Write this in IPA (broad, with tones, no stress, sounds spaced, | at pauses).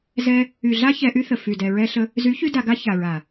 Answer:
z ɛ˧ | y˨ ɮ a˦ ç ɛ˧ ʔ y˦ θ ə˨ f y˨ d ɛ˨ ɹ ɛ˧ ɬ ə˧ | z y˨˦ ç y˧ d a˧ ɡ a˦ ç a˨ ɹ a˨